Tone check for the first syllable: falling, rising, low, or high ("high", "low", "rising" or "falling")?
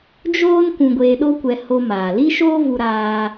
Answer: high